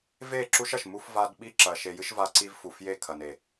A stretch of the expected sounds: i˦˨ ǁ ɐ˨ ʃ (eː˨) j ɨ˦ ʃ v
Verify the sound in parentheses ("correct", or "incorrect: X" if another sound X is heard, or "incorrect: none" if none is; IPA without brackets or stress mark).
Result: incorrect: e˨